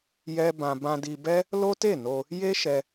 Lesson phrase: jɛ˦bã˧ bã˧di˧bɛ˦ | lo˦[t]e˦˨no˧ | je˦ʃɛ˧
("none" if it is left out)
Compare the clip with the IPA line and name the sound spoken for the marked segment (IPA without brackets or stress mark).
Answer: t